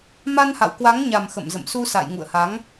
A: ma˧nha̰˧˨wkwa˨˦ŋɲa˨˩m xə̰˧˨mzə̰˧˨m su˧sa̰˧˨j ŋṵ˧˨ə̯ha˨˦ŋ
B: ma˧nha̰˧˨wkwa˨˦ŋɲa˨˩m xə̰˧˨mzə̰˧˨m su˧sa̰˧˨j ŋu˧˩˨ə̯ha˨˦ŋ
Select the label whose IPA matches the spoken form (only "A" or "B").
A